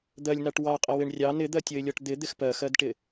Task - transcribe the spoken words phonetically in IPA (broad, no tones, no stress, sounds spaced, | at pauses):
d̪ ɜ lʲ n ɑ ʈ w ɑ qʼ ɪ w ɪ ɳ rʲ ɑ n ɪ d̪ ɜ tʲ ə ɪ̯ lʲ ɔ ʈ d̪ ɪ d̪ ɪ x p ɜ x ɜ d ʈ ɪ